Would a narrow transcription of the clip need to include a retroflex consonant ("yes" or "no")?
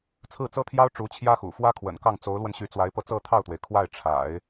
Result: yes